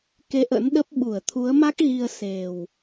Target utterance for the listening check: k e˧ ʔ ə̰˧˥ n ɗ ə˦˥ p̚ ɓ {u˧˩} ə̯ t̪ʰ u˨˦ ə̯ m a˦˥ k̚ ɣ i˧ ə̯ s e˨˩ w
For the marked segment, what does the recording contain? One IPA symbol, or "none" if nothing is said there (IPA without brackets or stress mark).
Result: u˧˩